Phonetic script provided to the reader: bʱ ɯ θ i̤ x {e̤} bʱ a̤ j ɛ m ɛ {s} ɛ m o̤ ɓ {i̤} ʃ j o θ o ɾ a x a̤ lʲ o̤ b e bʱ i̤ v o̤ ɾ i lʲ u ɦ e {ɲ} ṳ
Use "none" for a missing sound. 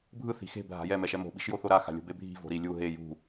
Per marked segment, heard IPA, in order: e̤, ʃ, i̤, j

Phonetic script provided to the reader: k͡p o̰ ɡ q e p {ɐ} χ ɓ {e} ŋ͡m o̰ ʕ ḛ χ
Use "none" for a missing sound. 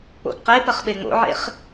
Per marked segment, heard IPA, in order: ɐ, e

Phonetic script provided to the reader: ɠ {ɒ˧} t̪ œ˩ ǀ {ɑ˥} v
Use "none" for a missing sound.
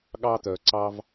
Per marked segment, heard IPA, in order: ɑ˧, ɑ˧

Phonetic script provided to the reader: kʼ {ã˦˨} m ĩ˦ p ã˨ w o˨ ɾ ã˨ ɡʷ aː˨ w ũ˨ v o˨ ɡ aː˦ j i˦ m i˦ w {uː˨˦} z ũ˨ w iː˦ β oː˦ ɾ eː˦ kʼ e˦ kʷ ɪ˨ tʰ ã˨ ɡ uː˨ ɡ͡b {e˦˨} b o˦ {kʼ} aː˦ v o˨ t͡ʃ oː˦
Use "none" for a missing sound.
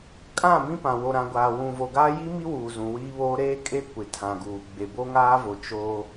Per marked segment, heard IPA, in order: ã˦˨, uː˨, e˨, ŋ

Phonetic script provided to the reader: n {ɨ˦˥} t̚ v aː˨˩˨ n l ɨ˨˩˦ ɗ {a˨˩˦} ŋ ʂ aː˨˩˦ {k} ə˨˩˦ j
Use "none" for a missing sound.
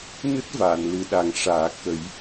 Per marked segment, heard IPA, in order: ɨ˦˥, a˨˩˦, k

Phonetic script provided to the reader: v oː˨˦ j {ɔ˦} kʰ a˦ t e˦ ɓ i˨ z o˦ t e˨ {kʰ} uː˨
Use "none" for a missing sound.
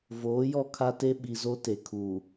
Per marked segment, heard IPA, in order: ɔ˦˨, kʰ

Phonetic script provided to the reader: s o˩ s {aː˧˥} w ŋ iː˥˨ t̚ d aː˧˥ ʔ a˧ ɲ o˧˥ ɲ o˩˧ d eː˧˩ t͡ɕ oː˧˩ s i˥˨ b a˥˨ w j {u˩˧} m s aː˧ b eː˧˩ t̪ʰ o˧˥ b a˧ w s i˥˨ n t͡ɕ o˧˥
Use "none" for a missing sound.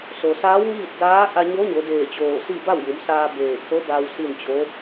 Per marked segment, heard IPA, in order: aː˧˥, u˩˧

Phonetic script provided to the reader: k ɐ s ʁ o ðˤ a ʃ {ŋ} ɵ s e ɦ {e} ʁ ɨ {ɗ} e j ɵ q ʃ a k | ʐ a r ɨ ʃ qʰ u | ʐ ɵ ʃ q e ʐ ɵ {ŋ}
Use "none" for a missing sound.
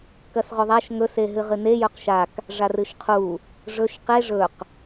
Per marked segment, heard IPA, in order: ŋ, ɨ, n, q

